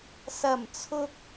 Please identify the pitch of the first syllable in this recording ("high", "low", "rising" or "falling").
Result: low